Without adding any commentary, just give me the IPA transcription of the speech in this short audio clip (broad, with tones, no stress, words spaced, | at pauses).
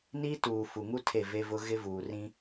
ni˦tuː˨ fu˨ŋu˦ tʰe˦˨ve˦vʊ˦ ɣɪ˦vuː˨rĩ˦